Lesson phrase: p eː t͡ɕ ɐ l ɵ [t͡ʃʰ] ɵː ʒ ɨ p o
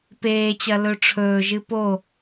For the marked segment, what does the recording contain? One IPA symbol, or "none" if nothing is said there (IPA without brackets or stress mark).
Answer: ʈ͡ʂʰ